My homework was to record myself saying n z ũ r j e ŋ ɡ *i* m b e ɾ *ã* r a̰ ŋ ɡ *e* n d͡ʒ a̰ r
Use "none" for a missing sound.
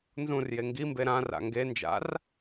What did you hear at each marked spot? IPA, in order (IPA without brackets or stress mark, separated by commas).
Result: i, ã, e